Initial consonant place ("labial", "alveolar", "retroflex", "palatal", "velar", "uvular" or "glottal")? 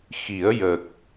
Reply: velar